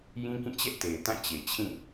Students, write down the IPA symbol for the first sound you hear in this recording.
j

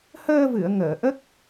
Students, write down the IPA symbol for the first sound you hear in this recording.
h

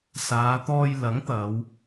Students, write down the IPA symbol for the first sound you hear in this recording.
s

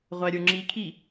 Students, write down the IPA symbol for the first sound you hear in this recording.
ʁʷ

